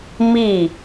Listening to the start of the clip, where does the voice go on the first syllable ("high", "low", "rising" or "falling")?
falling